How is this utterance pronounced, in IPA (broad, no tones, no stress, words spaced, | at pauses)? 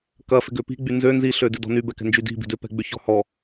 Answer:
kɐ fɪɡøpi̤ɡ͡by nzø nziɬø dɪdɔ̤nybɛ kɛ̤nd͡ʒydi̤ bi̤dʏpɛ̤ ɡ͡bʏçɔ̤hɔ